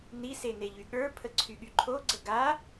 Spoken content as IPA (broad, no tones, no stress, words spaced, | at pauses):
nise neʎyɠə˞pʰə ǀʰyɠyǃʰoɡ͡ǀə ɡa